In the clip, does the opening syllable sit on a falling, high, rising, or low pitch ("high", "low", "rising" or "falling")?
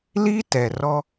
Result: high